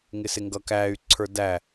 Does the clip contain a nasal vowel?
no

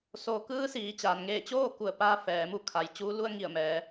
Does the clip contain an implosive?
no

